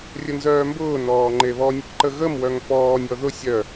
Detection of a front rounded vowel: present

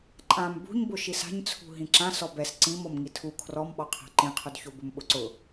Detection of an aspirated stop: present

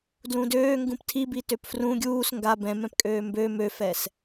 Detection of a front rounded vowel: present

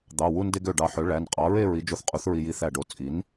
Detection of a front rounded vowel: present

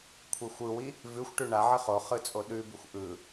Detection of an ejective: present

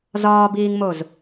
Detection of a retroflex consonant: absent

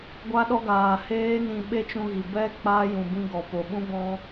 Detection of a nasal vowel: present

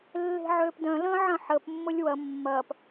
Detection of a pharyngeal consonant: present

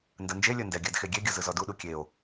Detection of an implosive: present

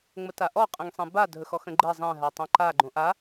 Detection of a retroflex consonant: absent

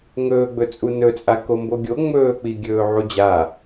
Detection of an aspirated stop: absent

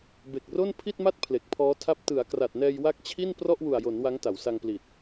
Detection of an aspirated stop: present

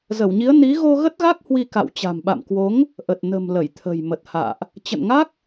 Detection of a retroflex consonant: absent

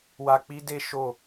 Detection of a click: absent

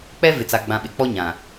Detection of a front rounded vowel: absent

